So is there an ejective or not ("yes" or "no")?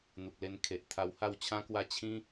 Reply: no